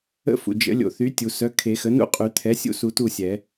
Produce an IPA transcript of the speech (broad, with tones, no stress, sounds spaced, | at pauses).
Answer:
ə̰˥˩ f ṵ˩ d͡ʒ ə̰˨˩˦ lʲ o̰˨˩˦ θ y˩˥ tʲ u˩ s œ˩˥ kʰ e˨˩˦ x ə˩˥ n ṵ˥˩ qʼ y˨˩˦ t̪ʰ ɛ˩˥ sʲ ṵ˥˩ s u˨˩˦ t u˥˩ sʲ ɛ˨˩˦